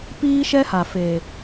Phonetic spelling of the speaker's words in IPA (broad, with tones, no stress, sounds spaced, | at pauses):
p iː˦ ʃ ɛ˦ h a˨ f eː˨